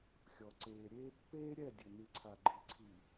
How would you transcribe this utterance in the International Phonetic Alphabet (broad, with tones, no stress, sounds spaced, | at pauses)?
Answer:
xʲ ɔ˨ ǀ eː˨ ɾʲ eː˦ pː eː˦ ɾʲ ɛ˦˨ dʲ ɘ˨ n ɨ˨ ǀʰ a˨ ɡ͡ǃ i˨ ǀʰ i˨